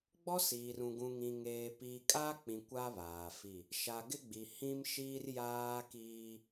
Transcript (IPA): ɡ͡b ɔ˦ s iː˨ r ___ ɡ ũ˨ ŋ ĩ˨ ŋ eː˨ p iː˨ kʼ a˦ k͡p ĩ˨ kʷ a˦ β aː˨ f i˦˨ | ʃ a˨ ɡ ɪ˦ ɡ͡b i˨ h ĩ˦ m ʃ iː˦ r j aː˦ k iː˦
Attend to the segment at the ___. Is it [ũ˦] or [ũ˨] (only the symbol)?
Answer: ũ˨